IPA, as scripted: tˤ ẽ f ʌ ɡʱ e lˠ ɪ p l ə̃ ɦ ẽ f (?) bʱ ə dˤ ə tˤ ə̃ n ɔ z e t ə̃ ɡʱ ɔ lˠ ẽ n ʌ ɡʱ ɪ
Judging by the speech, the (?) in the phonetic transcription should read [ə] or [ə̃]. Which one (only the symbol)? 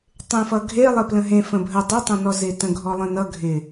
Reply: ə̃